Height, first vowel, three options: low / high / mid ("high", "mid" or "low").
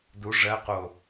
high